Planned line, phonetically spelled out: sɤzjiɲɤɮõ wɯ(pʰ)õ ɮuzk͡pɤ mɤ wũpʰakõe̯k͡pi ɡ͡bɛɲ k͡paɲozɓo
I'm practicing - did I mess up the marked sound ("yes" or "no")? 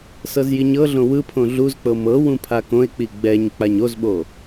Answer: no